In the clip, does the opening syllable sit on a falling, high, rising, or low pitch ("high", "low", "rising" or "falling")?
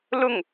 falling